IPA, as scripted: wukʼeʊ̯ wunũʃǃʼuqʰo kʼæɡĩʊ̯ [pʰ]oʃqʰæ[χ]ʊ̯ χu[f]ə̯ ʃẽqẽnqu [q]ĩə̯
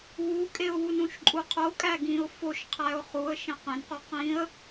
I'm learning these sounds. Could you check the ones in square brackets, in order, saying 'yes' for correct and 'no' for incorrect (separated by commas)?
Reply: no, no, no, yes